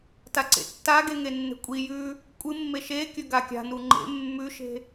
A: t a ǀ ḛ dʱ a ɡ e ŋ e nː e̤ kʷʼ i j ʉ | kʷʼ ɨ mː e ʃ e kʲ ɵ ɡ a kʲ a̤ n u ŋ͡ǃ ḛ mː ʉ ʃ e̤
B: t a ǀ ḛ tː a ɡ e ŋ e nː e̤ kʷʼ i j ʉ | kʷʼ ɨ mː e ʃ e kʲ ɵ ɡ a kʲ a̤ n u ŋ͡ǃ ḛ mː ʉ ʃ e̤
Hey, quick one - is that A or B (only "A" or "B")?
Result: B